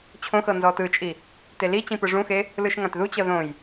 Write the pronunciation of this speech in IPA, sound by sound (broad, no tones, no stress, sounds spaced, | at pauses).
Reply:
t͡ɕʰ õ x ɤ n z ɔ t ɯ t͡ʃʼ i | t e l i t͡ɕ ĩ p ɯ ʐ ũ x e | l ɯ ʃ ŋ ã t ð u t͡ɕ ɤ ð õ j